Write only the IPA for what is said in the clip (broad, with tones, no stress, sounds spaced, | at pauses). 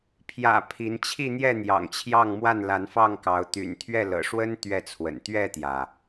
pʰ j ä̰˨˩ pʰ i˨˦ n t͡ɕʰ i˥˨ n̪ j ɛ˥˨ n̪ j ɑ̰˨˩ ŋ t͡ɕʰ j ɑ˥˨ ŋ m w a˥˨ n l a˨˦ n f ɑ˥˨ ŋ k ɑ˨˦ ʊ̯ t̪ y̰˨˩ n t̪ʰ ɥ ɛ˥˨ l ɤ̰˨˩ ʂ w ə˦ n t̪ ɥ ɛ˥˨ t͡sʰ w ə̰˨˩ n t̪ ɥ ɛ˥˨ t̪ j ä˩